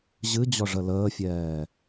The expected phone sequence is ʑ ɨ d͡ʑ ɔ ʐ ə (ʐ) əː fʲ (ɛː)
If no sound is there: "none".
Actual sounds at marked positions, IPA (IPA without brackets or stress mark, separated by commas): l, ɛː